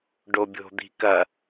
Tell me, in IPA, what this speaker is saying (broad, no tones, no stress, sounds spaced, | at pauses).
ɖ o bʲ o̤ d̪ i̤ k ɐ